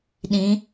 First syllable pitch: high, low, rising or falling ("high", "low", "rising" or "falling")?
rising